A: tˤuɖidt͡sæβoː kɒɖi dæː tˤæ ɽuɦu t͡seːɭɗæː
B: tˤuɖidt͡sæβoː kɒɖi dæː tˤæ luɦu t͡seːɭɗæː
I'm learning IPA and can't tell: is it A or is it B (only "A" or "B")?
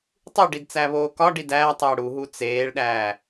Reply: A